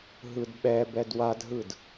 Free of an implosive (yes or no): no